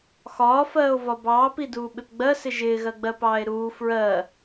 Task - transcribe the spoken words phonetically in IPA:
x ɒː f ɜː o̯ v ɒ b ɑː p i d uː ɓ ɪ p ɡ͡b ɜ s ɪ ʒ ɪː ɣ ɜ ɡ͡b ɜ p ɑː e̯ ɾ uː f ɹ ɜ

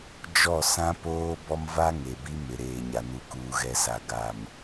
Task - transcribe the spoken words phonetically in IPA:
d͡ʒ ɔ˦˨ s ã˦ p oː˦ b ɔ˦ m v a˦ ŋ e˨ b i˦ m ɪ˨ ɾ eː˨ ɲ a˨ n u˨ k uː˨ ɣ ɛ˨ s a˨ ɡ a˨ m

